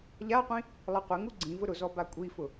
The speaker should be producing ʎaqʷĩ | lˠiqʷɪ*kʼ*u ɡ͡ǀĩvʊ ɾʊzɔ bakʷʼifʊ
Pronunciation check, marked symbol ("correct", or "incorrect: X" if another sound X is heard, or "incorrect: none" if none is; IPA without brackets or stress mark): incorrect: ŋ